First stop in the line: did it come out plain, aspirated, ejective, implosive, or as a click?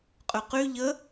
ejective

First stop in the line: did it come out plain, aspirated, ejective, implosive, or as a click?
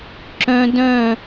click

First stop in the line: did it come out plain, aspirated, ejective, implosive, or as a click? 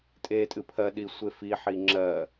ejective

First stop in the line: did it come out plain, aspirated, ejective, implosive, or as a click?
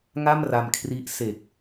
aspirated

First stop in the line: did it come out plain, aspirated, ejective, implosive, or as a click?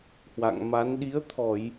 implosive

